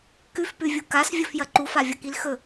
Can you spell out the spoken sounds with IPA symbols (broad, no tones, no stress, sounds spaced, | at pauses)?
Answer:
k ʉ f p ʉ vʲ u k a s vʲ ɵ f j ɐ ǃ u f a vʲ ɐ k i l x ɵ